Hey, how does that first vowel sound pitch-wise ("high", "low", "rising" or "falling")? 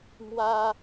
high